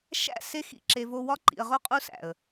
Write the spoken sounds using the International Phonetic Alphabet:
ʃ æ̰˦˨ s e˦ x ḭ˦˨ ǁ e˨ v o˦ w ɒ˦ ǃ ḭ˨ ə̯ ʁ o˦ qʼ u˦ s æ̰˨ ə̯

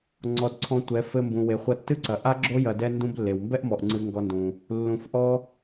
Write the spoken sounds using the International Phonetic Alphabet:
ŋ͡ǀ ɔ˨ d ǀʰ ɔ̃˧ tʷ ɛ˨˦ f ɘ˧ m b ũ˨ w e˨ χʷ ɐ˧ tː ɨ˦ ǀ ɐ˨ ʔ a˦ ɡ͡ǁ o˦ j ɐ˧ d ɛ˦ n d ũ˦ b lː e˨ w m b ɛ˦ ʔ m ɔ˨ ʔ ŋ͡ǀ ɨ˧ ŋ ɡ ɔ˧ n d ũ˨ | lː ũ˨ f ʔ ɔ˧

